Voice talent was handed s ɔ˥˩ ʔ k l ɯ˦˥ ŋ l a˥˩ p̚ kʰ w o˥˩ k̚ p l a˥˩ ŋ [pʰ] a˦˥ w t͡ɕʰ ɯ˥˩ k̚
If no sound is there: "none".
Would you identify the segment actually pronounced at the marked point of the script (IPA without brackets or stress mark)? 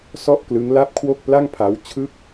pʰ